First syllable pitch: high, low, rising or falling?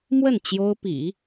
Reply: falling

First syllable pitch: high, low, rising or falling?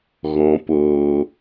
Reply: low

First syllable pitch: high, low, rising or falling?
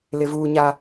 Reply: high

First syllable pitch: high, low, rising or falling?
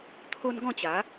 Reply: high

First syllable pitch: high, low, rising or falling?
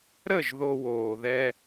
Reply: falling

